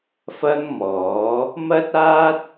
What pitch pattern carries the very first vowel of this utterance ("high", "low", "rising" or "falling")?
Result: high